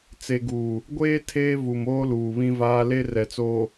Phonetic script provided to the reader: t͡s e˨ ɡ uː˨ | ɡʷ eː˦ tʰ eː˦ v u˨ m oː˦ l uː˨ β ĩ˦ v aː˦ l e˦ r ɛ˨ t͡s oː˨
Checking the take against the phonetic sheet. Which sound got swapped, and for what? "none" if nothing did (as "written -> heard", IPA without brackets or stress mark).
none